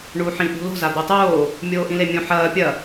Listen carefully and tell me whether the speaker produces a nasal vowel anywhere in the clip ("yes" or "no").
yes